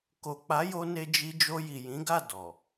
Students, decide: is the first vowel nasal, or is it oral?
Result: oral